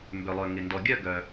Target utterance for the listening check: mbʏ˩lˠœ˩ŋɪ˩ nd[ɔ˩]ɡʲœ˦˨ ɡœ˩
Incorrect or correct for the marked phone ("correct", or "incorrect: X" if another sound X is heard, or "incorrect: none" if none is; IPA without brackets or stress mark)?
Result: correct